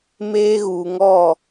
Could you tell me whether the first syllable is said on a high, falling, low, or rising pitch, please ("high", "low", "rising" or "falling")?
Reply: high